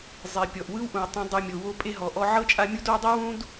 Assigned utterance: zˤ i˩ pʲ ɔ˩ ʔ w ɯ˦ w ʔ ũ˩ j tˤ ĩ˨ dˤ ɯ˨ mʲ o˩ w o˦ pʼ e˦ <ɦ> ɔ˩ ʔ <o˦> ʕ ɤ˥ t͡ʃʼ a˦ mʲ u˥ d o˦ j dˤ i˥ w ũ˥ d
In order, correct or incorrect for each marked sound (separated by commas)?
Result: correct, incorrect